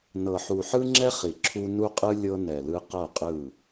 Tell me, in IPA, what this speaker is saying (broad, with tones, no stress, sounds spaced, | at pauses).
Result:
n ɤ˨ ħ u˨ ħ ɯ˦ ŋ͡ǁ ɛ˦ χ i˨ ǁʰ u˦ n u˦ qʼ ɯ˦ lʲ ɤ˦ n ɛ˨ l ɯ˦ q ɤ˦˨ qʼ ɯ˦˨